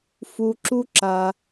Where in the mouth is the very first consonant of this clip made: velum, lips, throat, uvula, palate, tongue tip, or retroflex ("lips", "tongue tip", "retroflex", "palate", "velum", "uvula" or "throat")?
lips